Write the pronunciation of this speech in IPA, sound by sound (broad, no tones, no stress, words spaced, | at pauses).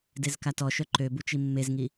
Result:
dezkatɔʃœ ǃø but͡ʃimːezŋi